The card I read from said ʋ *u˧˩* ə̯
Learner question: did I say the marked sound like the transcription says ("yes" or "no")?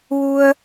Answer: no